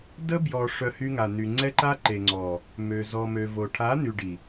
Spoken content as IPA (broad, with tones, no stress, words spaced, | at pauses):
də˦bjɔ˨ʂœ˨ hy˦ŋa˨ny˨ ŋ͡ǀɛ˦ǃa˦ǃe˨ŋ͡ǀɔ˨ | mø˨ zɔ˨mø˨vo˨ ʈʰa˨˦ ny˨ɖi˨